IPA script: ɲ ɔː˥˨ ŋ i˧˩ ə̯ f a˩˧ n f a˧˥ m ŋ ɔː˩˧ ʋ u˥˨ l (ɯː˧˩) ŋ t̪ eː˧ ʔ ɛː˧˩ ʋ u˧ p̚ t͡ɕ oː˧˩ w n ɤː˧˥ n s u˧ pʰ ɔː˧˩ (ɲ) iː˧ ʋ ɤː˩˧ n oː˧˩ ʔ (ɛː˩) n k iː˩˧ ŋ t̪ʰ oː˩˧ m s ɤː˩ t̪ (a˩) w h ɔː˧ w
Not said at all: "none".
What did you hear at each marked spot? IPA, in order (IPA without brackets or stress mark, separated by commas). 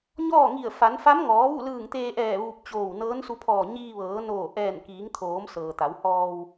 ɯː˧˩, ɲ, ɛː˧˩, a˩˧